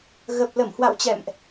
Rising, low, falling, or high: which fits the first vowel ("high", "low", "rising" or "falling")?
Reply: low